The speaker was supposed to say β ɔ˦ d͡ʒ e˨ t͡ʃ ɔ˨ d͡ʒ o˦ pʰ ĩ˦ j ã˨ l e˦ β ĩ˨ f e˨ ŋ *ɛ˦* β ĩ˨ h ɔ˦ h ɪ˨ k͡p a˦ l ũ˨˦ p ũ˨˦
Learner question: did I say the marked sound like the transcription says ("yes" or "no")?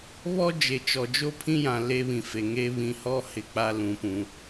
no